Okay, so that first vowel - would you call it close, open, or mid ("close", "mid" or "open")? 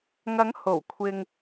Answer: open